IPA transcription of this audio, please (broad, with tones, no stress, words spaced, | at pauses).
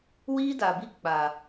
wiː˦da˨bi˦ k͡pa˨